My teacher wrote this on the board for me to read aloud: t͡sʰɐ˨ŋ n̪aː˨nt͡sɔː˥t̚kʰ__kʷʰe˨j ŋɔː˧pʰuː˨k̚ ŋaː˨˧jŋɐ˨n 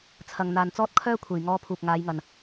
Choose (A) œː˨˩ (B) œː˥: B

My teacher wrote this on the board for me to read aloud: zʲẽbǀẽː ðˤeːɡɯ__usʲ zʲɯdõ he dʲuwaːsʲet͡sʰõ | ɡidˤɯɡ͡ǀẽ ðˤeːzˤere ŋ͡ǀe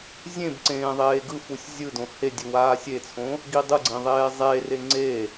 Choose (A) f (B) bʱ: A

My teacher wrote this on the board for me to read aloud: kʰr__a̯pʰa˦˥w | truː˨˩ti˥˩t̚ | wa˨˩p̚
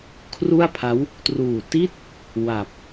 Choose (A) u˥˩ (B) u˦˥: A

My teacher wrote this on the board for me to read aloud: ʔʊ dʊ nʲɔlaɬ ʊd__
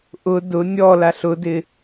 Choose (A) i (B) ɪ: B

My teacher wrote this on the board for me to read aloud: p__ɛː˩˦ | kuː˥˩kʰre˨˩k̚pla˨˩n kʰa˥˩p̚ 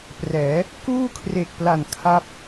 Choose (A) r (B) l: A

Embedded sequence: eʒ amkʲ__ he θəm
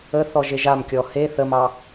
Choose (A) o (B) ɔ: B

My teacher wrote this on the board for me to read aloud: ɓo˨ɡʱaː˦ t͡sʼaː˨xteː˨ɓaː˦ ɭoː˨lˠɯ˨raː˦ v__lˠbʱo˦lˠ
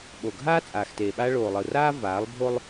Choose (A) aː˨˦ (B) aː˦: A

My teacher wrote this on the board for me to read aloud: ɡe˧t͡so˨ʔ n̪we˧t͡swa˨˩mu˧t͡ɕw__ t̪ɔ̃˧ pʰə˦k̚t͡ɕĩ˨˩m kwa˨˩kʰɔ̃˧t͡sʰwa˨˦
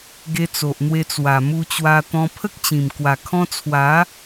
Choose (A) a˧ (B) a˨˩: A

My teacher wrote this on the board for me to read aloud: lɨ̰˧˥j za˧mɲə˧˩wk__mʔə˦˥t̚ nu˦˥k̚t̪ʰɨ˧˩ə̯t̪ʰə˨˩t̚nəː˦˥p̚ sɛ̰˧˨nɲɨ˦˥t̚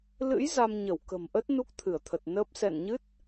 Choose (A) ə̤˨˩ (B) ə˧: A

